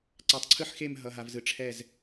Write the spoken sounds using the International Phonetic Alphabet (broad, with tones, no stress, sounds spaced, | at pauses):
ǀ a˧ tˤ ǀʰ ɯ˥ ħ x e˥˧ m ɦ ʌ˧ ɦ a˧ v z ɯ˧ ʈ͡ʂʰ ɛ˥˧ z